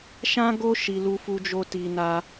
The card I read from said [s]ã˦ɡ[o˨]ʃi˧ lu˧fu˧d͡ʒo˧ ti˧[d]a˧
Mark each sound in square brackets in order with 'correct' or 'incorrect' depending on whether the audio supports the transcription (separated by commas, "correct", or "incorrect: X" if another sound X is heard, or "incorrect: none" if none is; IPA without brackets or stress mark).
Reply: incorrect: ʃ, incorrect: o˦, incorrect: n